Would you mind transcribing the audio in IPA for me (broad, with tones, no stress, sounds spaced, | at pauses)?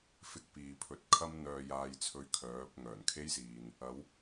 f ɪ˧ k̚ p iː˨ pʰ ɵ˨˥ t̚ kʰ ɐ˥ m n̪ œː˧ j aː˧ j t͡sʰ ɵ˧ ɥ kʰ œː˨˥ p̚ ŋ œː˨˩ n kʰ e˥ j s iː˨ n | ɐ˨˥ w